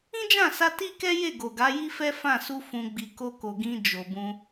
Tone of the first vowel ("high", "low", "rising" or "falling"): high